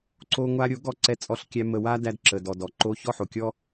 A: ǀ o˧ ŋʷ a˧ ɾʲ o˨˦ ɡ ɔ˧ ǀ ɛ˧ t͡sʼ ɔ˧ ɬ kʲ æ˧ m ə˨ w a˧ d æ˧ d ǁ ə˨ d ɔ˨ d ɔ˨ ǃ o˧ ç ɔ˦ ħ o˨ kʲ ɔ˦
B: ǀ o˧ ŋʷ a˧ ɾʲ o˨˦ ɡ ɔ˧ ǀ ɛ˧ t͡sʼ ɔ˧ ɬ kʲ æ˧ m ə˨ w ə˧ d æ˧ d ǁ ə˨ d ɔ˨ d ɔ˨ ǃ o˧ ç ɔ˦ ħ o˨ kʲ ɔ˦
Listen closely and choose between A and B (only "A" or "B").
A